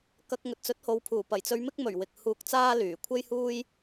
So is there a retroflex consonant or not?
no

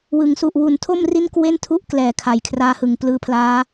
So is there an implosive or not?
no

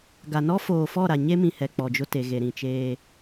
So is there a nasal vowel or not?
yes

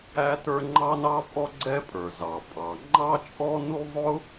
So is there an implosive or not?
no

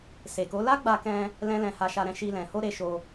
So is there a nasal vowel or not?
yes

